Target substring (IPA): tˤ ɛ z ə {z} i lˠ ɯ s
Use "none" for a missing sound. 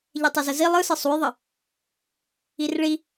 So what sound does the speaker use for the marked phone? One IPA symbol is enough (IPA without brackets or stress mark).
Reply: z